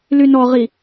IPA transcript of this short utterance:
lynɔʁi

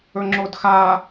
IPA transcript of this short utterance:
ɵŋ͡ǁodxa

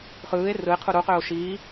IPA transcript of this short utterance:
χɯːe̯ rɯe̯ qʰuɾuqøːo̯ ʃiː

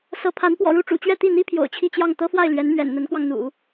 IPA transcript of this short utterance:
sɤ˧˥pʰa˧˥n pwɔ̰˨˩ɻu˥˩ʈ͡ʂṵ˨˩t͡ɕɥɛ˥˧ t̪i˥˩n̪i˥ pʰjo̰˨˩ʊ̯t͡ɕʰi˥˧t͡ɕjɑ˥˩ŋ t̪ɤ˥fwa˥˩ɪ̯ lɥɛ˧˥nmɥɛ̰˨˩n n̪ə˧˥nkwɑ˧ŋn̪ṵ˨˩˦

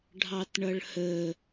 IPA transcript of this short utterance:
ɖʱɑtɳʌɭhə

